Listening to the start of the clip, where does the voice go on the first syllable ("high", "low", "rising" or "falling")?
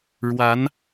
rising